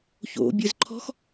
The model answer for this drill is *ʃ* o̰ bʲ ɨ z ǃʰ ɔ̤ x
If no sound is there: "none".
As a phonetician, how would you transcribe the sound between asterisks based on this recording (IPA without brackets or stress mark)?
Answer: ç